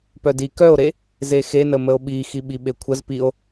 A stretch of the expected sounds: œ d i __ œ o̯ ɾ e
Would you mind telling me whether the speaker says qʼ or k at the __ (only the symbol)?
k